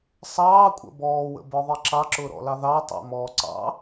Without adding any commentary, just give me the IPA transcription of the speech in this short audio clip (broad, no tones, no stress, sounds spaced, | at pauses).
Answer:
sˤ ɑː kʷʼ ə̰ b ɔː w ə̰ b ə˞ ðˤ i ǁ ɑ ǁ ʊː ɾ ɔ̰ l ɑ ð ɑ tˤ ɑ̰ m ɔː ǀ ɑ̰